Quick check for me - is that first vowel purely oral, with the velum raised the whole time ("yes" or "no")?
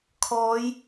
yes